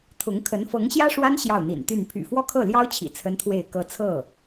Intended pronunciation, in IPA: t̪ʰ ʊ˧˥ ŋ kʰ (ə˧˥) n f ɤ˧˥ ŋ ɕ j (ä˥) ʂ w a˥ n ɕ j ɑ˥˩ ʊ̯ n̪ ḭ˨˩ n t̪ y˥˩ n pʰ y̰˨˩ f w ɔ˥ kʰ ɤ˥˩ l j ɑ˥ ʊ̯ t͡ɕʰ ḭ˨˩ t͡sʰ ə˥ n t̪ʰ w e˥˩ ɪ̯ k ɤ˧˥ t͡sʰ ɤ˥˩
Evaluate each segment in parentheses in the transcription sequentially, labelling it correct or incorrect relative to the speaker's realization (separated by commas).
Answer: correct, correct